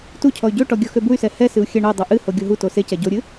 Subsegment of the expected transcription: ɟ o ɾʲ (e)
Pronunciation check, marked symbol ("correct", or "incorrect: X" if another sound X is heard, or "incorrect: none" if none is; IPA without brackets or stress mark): incorrect: ɨ